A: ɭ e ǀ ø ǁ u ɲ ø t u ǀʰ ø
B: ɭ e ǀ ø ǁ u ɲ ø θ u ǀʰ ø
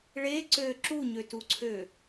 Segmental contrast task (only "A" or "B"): A